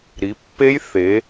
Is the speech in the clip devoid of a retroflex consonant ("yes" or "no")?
yes